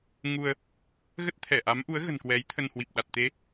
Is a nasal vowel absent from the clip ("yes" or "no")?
yes